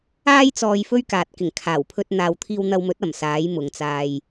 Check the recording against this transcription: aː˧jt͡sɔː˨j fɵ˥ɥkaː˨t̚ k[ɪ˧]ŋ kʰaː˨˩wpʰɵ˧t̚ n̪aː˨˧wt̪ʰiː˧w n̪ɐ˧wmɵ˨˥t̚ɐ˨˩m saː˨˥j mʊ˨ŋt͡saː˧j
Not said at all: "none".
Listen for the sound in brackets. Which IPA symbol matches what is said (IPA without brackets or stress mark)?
ɪ˨˩